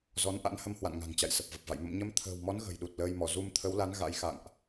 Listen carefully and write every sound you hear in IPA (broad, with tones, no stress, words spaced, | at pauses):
zɔ˨˦nʔa̰˧˥nhə˧mhwa̰˧˨n ŋa̤˨˩ŋt͡ɕa̰˧˨j sə˨˩p̚və˨˩p̚va̰˧˨j mə̰˧˨mɲə˧m t̪ʰə̤ː˨˩wmɔ˨˦n ɣə̤˨˩jɗu˨˩t̚ ləː˧jmɔ˧˩ zu˧mt̪ʰə˨˦wla˨˦n ɣa̰˧˥j xa̰˧˨ŋʔ